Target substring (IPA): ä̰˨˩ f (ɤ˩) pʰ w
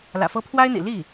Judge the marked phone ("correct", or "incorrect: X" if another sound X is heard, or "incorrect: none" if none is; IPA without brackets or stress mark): incorrect: ɤ˥